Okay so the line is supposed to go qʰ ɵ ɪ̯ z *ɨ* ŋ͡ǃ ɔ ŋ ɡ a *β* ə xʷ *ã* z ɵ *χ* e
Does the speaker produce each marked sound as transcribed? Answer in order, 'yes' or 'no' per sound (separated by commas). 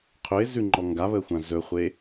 no, yes, yes, no